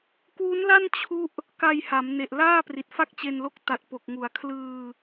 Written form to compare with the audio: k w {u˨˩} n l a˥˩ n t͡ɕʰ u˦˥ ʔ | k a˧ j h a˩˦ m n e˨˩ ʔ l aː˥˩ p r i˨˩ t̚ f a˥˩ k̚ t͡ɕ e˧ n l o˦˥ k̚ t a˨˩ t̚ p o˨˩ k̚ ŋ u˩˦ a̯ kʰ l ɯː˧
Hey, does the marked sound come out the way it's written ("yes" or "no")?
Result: no